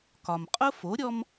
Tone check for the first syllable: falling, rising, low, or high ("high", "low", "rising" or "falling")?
low